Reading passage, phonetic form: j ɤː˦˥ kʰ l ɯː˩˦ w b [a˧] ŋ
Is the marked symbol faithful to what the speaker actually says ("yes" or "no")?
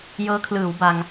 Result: yes